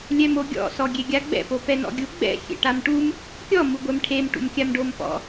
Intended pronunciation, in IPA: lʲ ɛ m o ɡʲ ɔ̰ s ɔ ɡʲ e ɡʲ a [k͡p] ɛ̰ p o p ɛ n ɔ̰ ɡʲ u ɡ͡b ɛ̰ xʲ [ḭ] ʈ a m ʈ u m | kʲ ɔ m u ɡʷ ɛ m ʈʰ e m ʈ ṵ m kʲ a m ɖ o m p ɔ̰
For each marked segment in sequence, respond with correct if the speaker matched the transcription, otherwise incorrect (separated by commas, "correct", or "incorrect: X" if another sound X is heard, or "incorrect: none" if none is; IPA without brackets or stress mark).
incorrect: ɡ͡b, incorrect: ḛ